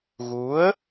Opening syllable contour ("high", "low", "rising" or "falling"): rising